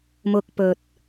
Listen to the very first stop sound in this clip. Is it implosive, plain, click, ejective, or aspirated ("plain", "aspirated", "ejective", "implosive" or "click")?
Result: plain